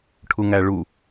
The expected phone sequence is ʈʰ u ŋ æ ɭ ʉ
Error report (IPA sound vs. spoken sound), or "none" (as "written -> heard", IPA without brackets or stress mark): ʉ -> u